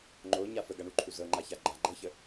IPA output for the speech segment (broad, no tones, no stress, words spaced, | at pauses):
ŋ͡ǃoɲa fəɡaɳuǃʰu zɤŋ͡ǃaça ɡ͡ǃa ɡ͡ǃɤçə